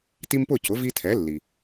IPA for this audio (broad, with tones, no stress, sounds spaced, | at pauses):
t i˦ m p ʊ˥˨ c ʊ˩˥ v i˦ tʰ ɛ˩˥ lː i˩